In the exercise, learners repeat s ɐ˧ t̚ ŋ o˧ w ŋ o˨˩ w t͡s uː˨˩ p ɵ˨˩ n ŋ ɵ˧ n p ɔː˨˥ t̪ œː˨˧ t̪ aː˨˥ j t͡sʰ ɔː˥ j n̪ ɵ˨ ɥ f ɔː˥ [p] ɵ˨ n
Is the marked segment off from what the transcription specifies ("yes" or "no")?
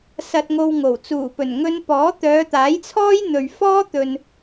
yes